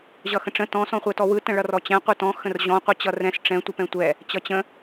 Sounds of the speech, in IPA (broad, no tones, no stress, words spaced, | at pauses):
ʑʌxə̃ʈ͡ʂə̃ tɔ̃ sɔ̃χʷɛtɔwɯ tə̃ɭʌrɔt͡ɕɛ̃ qʷɯtɔ̃ xə̃rʑɔ̃ qʷɯt͡ɕʌrɛ̃s ʈ͡ʂɛ̃ tʷɛpɛ̃tʷɛ | t͡ɕʌt͡ɕə̃